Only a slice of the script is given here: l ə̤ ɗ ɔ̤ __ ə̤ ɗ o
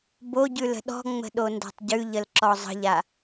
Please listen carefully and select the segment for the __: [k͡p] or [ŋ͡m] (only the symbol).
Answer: ŋ͡m